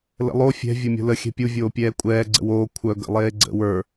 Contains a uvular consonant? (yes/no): no